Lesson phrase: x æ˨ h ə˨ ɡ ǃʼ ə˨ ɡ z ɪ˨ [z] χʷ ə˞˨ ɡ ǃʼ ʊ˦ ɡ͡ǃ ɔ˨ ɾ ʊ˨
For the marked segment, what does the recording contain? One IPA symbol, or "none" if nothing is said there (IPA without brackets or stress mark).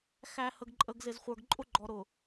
z